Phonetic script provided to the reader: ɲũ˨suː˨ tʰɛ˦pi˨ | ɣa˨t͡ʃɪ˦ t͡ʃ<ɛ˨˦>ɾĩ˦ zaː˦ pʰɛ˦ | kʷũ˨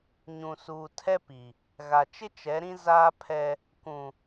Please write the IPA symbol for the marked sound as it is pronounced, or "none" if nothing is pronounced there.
ɛ˨˦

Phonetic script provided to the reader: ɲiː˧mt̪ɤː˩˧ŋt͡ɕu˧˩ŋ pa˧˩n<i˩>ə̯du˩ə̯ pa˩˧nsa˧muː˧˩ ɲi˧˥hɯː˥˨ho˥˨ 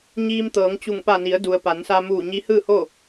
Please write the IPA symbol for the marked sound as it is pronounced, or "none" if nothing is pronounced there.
i˩˧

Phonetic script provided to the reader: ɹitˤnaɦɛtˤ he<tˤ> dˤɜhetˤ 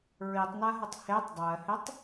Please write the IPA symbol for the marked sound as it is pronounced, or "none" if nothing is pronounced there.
tˤ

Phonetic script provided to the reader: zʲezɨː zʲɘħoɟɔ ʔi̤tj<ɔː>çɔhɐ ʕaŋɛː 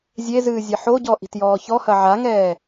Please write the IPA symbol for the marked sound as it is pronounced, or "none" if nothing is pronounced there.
ɔː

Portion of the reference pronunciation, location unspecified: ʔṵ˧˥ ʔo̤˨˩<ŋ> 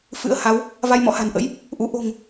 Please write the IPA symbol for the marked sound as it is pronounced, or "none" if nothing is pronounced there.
ŋ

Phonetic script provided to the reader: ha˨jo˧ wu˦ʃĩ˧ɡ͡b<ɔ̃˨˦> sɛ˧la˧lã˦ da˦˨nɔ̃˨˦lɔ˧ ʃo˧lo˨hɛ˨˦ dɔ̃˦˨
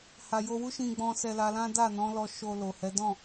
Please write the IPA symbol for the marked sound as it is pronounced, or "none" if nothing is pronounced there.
ɔ̃˧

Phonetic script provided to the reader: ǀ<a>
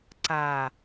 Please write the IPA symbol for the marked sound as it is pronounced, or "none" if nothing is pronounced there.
a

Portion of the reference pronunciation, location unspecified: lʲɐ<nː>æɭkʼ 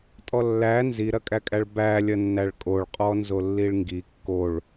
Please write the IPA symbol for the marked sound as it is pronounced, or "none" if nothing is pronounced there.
nː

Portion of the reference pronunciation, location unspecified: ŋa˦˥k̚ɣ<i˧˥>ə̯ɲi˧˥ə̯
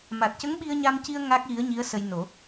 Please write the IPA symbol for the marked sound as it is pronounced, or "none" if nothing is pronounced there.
i˧˥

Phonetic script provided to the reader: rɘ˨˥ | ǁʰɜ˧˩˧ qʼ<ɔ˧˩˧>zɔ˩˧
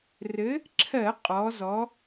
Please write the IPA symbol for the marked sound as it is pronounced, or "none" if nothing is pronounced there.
ɔ˩˧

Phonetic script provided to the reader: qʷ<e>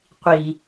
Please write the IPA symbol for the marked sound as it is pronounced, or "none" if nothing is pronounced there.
i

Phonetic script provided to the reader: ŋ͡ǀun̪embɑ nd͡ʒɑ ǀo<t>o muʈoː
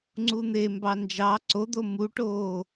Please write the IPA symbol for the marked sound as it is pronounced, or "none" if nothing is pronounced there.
d̪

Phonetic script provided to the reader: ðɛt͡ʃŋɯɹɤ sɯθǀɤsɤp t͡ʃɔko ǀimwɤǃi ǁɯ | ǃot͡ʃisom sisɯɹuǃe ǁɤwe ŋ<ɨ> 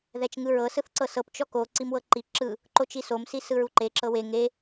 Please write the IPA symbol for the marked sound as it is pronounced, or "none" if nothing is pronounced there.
e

